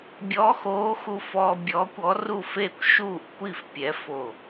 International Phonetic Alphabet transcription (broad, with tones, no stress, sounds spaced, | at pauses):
bʲ ɔ˧˥ x oː˧˥ x u˧ f ɔː˧ bʲ ɔː˧˥ kʷ ɔ˧˥ r u˥˩ f eː˥˩ kʷ ʃ uː˥˩ ʔ kʷ i˥˩ f pʲ ɛ˧˥ f o˥˩